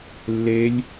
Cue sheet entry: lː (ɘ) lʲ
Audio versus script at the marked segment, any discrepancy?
yes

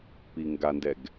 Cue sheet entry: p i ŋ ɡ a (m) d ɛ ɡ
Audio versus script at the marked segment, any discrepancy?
yes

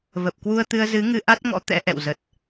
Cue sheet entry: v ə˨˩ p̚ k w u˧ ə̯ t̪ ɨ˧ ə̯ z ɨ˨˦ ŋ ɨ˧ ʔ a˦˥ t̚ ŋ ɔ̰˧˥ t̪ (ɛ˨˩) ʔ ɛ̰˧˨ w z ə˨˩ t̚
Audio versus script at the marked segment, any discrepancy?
yes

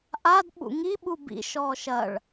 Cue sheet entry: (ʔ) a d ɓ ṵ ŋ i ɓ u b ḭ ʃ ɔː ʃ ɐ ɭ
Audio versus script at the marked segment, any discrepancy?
no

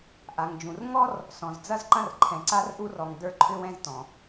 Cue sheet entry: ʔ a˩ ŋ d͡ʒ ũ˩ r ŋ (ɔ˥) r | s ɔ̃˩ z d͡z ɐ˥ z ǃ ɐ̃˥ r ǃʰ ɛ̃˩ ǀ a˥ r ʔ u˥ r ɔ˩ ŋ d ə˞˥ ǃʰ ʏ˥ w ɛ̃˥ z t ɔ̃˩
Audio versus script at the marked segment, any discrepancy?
no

